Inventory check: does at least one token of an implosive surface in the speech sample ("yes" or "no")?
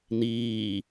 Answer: no